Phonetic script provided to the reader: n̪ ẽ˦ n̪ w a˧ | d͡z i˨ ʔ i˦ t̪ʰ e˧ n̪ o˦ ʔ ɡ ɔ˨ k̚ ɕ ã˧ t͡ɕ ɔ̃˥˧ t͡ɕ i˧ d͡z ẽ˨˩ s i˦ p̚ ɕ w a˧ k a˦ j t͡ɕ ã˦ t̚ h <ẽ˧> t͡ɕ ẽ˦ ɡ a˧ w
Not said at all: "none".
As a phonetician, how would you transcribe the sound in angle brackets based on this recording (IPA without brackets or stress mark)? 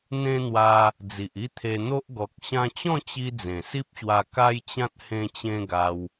ẽ˦